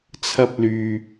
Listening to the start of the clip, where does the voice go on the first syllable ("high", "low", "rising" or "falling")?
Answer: low